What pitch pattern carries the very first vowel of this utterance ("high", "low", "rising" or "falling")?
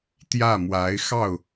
falling